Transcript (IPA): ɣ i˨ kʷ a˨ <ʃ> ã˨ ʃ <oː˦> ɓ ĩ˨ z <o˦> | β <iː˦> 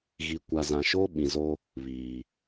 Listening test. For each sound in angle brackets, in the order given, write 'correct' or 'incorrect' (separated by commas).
incorrect, correct, correct, incorrect